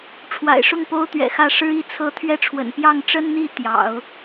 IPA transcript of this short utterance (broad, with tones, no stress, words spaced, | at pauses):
ʈ͡ʂʰwa̰˨˩ɪ̯ʂʊ˥˩ŋ po˥ʊ̯t̪ɥɛ̰˨˩xä˥˩ ʂɻ̩˥i˥˩ t͡sʰɤ˥ t̪ʰɥɛ˥˩ʈ͡ʂʰwə̰˨˩n pjɑ˥˩ŋʈ͡ʂə˥nn̪i˥˩ t̪jɑ̰˨˩˦ʊ̯